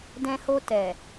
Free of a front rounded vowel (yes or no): yes